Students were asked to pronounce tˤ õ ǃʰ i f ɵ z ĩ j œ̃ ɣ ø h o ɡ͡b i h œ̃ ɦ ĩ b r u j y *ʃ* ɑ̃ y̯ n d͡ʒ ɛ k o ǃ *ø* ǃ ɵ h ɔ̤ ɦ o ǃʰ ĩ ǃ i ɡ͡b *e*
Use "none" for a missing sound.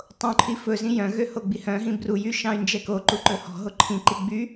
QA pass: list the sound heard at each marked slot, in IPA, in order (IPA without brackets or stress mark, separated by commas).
ʃ, u, y